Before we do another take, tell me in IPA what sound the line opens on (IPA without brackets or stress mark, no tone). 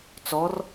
t͡s